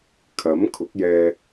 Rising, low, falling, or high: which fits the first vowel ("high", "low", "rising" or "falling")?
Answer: rising